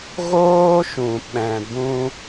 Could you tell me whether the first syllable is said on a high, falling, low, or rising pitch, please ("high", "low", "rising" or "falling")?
high